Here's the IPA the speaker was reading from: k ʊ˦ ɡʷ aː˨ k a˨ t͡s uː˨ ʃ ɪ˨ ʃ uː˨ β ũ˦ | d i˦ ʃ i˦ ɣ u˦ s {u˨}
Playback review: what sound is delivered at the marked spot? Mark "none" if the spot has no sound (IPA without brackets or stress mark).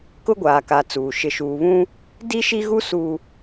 u˦